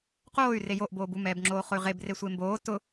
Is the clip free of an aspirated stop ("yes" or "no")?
yes